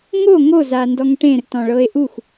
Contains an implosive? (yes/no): no